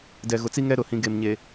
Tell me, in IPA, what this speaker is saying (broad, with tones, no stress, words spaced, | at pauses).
dɛ˨ɣʊ˨t͡si˦ŋɛ˦ ɾʊ˨hĩ˨ɡe˨mɲe˨